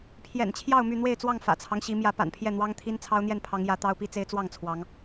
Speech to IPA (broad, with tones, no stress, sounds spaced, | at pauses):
pʰ j ɛ̰˨˩ n t͡ɕʰ j ɑ˥˨ ʊ̯ m y˥˨ n̪ w e˥˨ ɪ̯ t͡s w ɑ˥˨ ŋ f ä̰˨˩ t͡sʰ ɑ˦ ŋ ɕ i˨˦ m j ä˨˦ p a̰˨˩ n pʰ j ɛ˥˨ n̪ w ɑ˦ ŋ t̪ʰ i˦ n t͡sʰ ɑ˦ ʊ̯ n̪ j ɛ˥˨ n pʰ ɑ˨˦ ŋ j ä˨˦ t̪ ɑ˦ ʊ̯ p i˦ t͡s e˦ ɪ̯ t͡s w ɑ˥˨ ŋ t͡sʰ w ɑ˨˦ ŋ